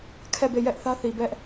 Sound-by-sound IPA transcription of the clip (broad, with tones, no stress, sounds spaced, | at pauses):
kʰ ɛ˦˨ b e˦˨ j ɛ˦ ʔ θ ä˦ θ i˨ b ɛ˦ ʔ